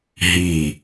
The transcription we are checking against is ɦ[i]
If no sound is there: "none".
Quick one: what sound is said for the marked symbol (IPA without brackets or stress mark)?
i